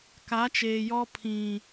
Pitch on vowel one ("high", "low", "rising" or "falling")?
rising